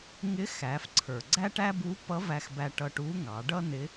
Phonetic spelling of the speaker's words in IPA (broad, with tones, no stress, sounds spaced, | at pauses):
ŋ ɪ˧˥ x æ˩˧ f ǀʰ ə˞˩ ɡ͡ǀ æ˥ ʈ æ˥ b u˧˥ p ʌ˧˥ v æ˧ x b æ˧ ʈ ʌ˧ ʈ u˧˥ ŋ ɑ˩˧ ɖ ʌ˥ n ɪ˧˥